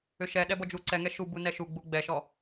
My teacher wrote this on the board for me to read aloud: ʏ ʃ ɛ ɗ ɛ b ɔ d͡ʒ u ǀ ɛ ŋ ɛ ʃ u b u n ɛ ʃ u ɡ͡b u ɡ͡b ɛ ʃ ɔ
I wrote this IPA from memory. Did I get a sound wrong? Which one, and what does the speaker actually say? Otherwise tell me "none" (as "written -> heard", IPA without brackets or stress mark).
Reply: none